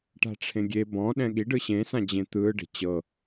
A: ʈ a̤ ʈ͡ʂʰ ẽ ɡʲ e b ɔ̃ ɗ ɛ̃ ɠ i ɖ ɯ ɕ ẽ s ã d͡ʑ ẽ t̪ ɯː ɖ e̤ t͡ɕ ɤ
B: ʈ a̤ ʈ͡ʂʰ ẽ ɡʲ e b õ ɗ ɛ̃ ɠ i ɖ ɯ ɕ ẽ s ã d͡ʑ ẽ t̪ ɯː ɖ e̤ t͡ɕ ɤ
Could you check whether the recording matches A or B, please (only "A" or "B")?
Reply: A